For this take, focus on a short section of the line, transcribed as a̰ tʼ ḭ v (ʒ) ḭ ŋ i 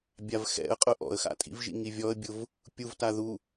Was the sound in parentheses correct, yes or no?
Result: yes